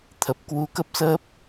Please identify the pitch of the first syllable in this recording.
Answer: low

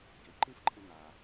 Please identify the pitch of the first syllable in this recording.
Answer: low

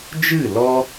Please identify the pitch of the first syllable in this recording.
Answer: falling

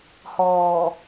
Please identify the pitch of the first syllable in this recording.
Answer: low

